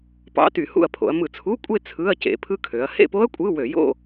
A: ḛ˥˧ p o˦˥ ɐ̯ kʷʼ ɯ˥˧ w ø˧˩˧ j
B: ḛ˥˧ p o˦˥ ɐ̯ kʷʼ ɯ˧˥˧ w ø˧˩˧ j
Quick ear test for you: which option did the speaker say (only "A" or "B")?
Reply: B